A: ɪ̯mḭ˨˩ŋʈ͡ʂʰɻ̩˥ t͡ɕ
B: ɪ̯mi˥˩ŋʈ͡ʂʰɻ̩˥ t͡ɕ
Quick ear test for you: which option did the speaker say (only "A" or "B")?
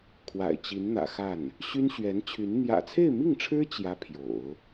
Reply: B